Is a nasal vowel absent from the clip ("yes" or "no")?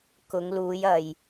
yes